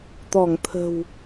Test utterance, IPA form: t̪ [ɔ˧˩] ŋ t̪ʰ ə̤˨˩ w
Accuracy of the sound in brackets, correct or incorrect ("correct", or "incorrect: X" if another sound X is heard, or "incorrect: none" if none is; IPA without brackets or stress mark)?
correct